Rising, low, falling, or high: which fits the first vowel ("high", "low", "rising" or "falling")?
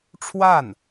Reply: falling